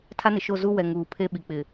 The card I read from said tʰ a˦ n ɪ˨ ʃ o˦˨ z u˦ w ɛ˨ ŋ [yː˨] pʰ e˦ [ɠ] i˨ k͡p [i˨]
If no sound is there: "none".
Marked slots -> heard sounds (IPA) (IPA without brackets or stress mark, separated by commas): uː˨, ɓ, ɪ˨